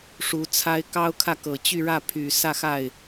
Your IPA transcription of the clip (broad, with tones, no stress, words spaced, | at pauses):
ʂu˧˥t͡sʰa˥ɪ̯ kɑ˥ʊ̯kʰä˥˩kɤ˨˩ t͡ɕy˥˧ɻä˥˩ pʰy˨˩sä˥˧xa˥˩ɪ̯